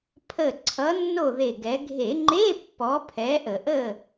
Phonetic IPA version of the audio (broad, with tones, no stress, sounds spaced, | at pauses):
pʰ ə˧˩ ǀʰ ʌ˨˦ nː o˥˨ ð e˧˩ ɡ ɛ˨˦ ɡʱ e˧˩˧ ŋ͡ǃ e˧˥˧ pː ɔ˨˦ pʰ ɛ˨˦ ʔ ə˧˩˧ ʔ ə˥˨